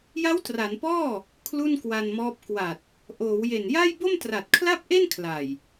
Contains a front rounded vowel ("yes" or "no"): no